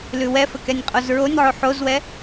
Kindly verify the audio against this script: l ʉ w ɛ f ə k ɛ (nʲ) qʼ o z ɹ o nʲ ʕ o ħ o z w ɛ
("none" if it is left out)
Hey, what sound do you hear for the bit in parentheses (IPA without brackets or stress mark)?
nʲ